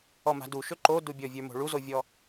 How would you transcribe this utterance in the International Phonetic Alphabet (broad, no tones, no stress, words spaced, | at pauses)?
ɔma̤duʃɵ ǃodubʲɔvʲə˞ mo̤ɭuzovʲɔ